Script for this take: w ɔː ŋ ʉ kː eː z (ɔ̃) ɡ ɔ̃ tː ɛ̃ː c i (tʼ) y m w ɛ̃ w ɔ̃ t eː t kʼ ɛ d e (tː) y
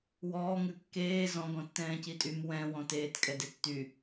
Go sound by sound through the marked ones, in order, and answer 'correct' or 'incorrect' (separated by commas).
correct, correct, correct